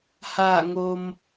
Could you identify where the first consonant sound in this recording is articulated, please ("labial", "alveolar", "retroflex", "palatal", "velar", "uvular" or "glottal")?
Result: glottal